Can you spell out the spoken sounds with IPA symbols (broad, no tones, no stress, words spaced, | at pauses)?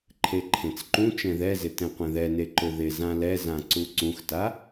ǃʰeǃʰẽt͡sǃũ t͡ʃɛ̃ðɛzɪ tɛ̃qʷɛ̃ðɛne ǃʊðɪ zãlɛzã ǀuǀũxta